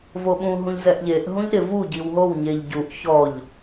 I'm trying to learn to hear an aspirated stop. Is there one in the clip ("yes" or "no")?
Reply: no